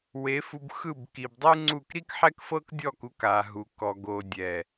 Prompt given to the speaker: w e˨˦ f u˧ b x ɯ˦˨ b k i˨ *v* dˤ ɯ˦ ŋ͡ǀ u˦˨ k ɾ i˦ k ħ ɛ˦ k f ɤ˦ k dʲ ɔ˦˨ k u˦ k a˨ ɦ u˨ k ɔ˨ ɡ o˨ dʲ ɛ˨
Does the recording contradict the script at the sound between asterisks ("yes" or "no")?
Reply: yes